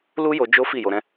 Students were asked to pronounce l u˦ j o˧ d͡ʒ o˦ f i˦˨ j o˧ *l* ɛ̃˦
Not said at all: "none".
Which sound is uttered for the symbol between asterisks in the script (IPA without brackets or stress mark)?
ɾ